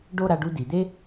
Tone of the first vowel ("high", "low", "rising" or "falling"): falling